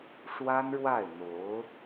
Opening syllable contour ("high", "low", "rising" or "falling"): high